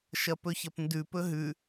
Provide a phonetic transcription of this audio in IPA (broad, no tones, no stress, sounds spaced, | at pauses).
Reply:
ʃ ɐ p ɵ ç ɐ p n d ʉ p ɵ ɦ ʉ